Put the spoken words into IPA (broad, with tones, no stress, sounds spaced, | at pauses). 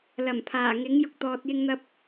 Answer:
l ɐ˨˩ m pʰ aː˨˩ ŋ ɪ˨˥ ŋ j ʊ˧ k̚ t̪ ɔː˨ t̚ j ɪ˧ ŋ n̪ ɐ˧ p̚